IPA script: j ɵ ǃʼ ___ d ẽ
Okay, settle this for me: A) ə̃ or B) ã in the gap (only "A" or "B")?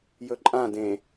B